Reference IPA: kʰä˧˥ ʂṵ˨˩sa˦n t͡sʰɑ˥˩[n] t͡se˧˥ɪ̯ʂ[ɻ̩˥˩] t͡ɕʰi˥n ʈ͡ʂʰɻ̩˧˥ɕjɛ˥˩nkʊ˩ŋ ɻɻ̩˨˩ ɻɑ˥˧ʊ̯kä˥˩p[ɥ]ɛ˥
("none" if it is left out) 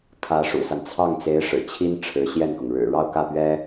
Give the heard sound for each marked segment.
ŋ, ɻ̩˨˩, ɥ

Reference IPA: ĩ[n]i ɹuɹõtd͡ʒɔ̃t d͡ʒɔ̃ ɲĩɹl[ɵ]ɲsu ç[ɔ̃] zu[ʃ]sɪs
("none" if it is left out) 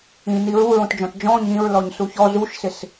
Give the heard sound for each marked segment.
n, ɔ, ɔ, ʃ

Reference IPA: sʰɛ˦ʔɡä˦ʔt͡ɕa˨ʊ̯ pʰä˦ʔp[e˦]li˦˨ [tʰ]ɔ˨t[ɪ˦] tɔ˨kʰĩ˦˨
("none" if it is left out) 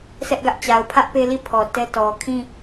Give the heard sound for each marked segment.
e˦, pʰ, ɛ˦

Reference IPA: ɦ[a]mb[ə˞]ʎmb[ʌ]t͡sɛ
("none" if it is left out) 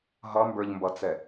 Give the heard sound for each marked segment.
ʌ, ə˞, ʌ

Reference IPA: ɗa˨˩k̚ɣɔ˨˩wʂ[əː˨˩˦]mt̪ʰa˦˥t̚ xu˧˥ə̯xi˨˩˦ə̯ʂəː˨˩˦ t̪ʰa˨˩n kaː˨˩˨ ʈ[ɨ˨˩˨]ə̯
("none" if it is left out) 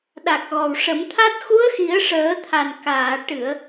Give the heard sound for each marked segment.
ə˨˩˦, ɨ˨˩˨

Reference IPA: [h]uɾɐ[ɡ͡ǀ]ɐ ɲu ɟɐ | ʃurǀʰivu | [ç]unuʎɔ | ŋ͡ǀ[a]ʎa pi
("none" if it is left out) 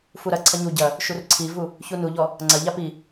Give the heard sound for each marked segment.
f, ǀʰ, ç, ɐ

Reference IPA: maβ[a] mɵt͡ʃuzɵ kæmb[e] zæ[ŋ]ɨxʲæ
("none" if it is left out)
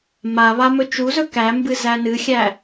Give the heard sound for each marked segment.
a, ɨ, n

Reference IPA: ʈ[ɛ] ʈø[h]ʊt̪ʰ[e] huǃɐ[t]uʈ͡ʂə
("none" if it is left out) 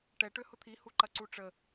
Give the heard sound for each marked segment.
ɛ, h, i, ǀ

